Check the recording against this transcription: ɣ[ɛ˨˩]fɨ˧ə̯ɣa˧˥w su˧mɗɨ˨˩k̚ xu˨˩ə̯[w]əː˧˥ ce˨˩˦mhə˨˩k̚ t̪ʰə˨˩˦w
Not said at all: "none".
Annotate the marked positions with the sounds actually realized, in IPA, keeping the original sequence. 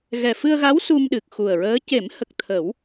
ɛ˨˩, ɹ

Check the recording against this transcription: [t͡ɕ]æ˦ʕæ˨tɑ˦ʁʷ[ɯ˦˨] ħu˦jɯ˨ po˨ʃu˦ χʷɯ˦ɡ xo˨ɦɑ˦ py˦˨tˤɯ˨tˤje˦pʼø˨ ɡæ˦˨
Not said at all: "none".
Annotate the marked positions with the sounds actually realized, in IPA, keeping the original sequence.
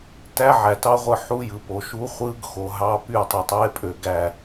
t, ɯ˦˨

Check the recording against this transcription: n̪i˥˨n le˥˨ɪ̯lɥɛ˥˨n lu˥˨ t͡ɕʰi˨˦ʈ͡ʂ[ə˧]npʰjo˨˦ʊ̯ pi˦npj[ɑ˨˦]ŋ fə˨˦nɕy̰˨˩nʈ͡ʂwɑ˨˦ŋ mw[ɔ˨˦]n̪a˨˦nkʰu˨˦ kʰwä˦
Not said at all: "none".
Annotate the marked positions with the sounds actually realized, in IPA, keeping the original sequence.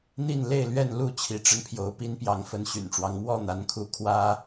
ə˧, ɑ˨˦, ɔ˥˨

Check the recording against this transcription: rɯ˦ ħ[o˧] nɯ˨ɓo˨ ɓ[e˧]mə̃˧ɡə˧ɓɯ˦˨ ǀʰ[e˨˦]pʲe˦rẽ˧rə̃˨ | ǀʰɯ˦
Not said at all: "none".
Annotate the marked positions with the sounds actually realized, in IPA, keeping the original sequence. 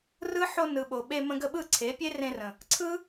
o˧, e˧, e˨˦

